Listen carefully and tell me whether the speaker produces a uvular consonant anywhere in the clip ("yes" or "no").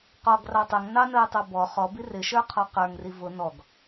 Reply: yes